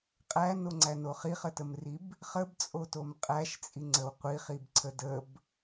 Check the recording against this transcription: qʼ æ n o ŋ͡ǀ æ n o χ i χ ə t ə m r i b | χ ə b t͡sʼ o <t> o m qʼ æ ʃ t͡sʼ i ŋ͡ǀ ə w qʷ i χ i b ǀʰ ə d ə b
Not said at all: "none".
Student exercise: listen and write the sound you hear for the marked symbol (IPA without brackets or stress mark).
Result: t